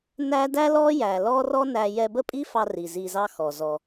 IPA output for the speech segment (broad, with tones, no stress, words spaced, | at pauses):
næ˦ dæ˦lɔ˦jæ˨ lɔ˦rɔ˦ næ˧ jɛ˧bə˦pʼi˦fɑ˧ ri˨zi˧zɑ˦ xɔ˨ zɔ˧